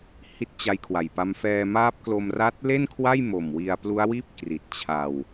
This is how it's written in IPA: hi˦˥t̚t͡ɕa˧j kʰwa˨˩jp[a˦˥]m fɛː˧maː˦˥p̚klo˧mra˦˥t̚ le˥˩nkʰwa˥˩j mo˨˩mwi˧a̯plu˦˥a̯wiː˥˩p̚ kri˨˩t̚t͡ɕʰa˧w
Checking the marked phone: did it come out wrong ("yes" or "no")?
no